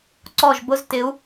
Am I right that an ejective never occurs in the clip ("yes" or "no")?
yes